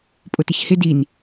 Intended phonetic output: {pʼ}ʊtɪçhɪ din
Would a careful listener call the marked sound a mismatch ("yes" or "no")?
no